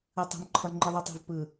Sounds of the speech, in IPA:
ɯ˨tˤṳ˨mǃʰʌ˨ ŋ͡ǃɯ˨ðˤɯ˨tˤɛ̤˨v pɯ˨

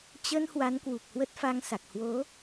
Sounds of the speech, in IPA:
t͡ɕə˧n hwa˨˦nkwu˨˩k̚hwə˦˥t̚fa˧ŋ sa˨˩k̚hwo˨˦

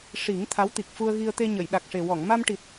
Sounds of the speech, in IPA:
ʂi˨˩˦ŋ t̪ʰa˧˥wt̪i˨˩k̚fu˧ə̯ɣi˧ə̯ t̪e˧ɲə˨˩˨jɗa˨˩k̚ʂe˨˩ wɔ˨˩˨ŋma˧mʈi˨˩t̚

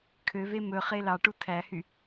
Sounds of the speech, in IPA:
kʰøve mɵχe lɑʈu tʰæhy

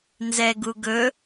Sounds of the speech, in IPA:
nzɛɡuɡɵ

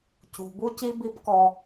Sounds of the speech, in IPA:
cṳ˨bu˦ci˦ bi˦pkɔ˦

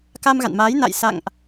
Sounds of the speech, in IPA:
ka˧mɣa̰˧˨nmaː˨˦j na̰˧˨jsa̰˧˨ŋʔ

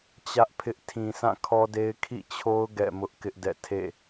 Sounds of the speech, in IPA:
t͡ɕä˦ʔpʰɪ˦ʔ tʰĩ˨sã˦˨kʰɔ˦de˦ɪ̯ kʰḭ˦˨t͡ɕʰo˦ʊ̯ ɡɛ̰˦˨ mʊ˦ʔkɪ˦ʔdɛ̰˦˨ tʰḛ˦˨

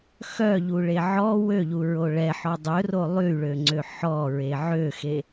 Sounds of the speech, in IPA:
xœʎuɭe ʕɔ wøʎuɹo ɭɛħɔ dˤɵro lˠyɭøŋ͡ǀø ħɔɹe ʕøxe

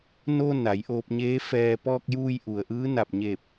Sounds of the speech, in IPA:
no˧ na˩˧jʔoː˧p̚ɲeː˧˥ fɛː˧ pɔː˧k̚juː˧j ʔu˩ə̯ʔɯː˧˥na˧˩p̚ɲeː˧˩p̚

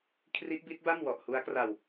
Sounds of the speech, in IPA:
kʰri˦˥ʔbi˦˥t̚ ba˥˩mwɔ˨˩ʔhu˦˥a̯ kra˧w

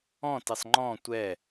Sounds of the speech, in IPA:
ɔ̃tisˤ ŋ͡ǃɔ̃ tʷɛ

